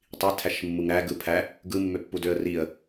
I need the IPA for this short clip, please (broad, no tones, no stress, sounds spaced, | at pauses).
tˤ i tʰ æ ʃ mː u ŋ ɾ æ ɡ ɯ pʰ æ | ɡ ɯ mː ø pː u d ø ə̯ r i ə̯